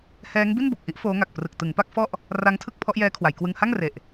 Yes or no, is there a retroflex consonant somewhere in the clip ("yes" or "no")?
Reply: no